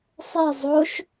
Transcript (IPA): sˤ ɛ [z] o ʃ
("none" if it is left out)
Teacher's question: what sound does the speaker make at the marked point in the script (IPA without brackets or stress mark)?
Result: zˤ